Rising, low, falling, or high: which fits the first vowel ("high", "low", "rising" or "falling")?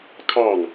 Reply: falling